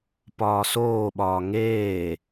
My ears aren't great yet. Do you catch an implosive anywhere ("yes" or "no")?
yes